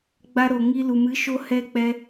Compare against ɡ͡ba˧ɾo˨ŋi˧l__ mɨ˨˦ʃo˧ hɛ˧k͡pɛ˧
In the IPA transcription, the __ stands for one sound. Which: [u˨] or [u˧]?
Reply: u˨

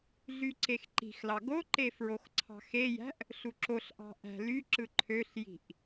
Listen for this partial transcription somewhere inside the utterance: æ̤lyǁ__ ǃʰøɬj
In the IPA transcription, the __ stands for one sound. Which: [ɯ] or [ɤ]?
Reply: ɯ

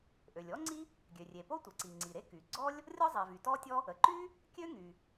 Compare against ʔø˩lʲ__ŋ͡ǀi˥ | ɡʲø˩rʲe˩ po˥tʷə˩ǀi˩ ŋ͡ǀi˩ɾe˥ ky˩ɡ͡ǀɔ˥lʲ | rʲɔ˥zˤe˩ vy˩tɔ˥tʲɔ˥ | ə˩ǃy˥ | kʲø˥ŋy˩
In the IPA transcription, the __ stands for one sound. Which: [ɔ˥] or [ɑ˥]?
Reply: ɔ˥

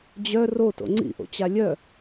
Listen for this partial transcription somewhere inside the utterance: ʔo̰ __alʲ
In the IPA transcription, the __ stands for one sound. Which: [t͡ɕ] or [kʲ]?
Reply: t͡ɕ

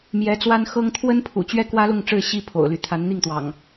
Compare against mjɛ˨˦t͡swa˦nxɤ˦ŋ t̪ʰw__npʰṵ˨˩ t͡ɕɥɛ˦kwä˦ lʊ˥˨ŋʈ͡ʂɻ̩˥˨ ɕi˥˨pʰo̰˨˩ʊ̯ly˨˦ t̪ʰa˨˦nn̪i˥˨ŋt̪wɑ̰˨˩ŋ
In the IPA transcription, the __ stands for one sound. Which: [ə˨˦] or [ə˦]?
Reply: ə˦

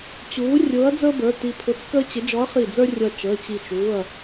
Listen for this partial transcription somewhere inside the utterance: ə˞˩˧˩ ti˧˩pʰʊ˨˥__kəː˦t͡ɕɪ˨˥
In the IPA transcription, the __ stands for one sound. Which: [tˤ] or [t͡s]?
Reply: t͡s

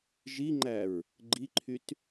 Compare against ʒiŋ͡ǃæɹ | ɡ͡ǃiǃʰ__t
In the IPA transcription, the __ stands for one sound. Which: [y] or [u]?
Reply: y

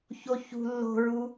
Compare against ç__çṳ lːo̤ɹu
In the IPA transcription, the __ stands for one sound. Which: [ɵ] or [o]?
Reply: o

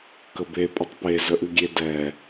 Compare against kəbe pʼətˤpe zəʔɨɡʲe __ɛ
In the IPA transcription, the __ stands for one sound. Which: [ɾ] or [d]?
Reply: d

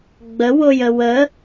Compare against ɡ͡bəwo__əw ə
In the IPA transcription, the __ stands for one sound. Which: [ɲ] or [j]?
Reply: j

